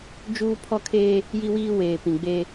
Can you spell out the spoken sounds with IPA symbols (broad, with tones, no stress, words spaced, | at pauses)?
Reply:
d͡ʒuː˦pʰɔ˦kʰeː˦ | ji˦wiː˦weː˨pĩ˨ ɡ͡beː˦